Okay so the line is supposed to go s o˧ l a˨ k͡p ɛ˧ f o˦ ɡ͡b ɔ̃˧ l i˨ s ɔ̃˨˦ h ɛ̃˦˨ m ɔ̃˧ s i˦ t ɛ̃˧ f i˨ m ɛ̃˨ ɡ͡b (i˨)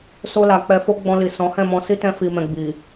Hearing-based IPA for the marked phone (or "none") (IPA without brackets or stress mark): i˨